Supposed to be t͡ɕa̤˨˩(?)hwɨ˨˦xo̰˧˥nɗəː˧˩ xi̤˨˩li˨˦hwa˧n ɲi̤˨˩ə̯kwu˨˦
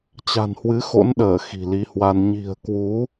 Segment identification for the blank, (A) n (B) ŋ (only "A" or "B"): A